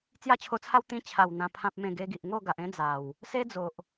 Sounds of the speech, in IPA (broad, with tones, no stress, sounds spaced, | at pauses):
t͡s j a˥˧ t͡ɕʰ o˧ t͡sʰ a˦ w t̪ ĩ˧ t͡ɕʰ a˨˩ w n̪ ã˨˩ pʰ ã˨ p̚ m ẽ˨˩ ɡ e˧ ɡ i˨ ʔ ŋ o˥˧ ɡ a˨ ʔ ẽ˦ d͡z a˨˩ w | s e˦ d͡z o˨ ʔ